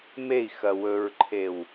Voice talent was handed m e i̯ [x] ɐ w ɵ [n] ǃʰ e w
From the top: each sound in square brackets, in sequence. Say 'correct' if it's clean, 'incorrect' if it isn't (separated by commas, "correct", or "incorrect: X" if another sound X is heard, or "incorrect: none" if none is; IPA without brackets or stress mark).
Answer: correct, incorrect: ɹ